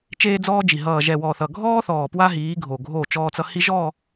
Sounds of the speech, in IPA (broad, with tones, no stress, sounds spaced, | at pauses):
t͡ʃ eː˦ d͡z ɔː˦ d͡ʒ i˨ ɦ ʌː˨ ʒ ɛ˨ w ɔ˨ θ ʌ˨ ɡʱ ɔː˦ θ ɔː˨ p w a˦ ɦ iː˨˦ ɡʱ o˨ ɡʱ o˦˨ t͡ʃ ɔː˦ t͡s ʌ˦ h i˦ ʒ ɔː˦˨